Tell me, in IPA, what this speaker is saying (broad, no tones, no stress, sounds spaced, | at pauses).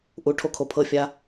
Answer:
ʔ u ʈʰ o kʰ o pʰ ɤ fʲ a